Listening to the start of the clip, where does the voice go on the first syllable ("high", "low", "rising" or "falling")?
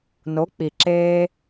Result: rising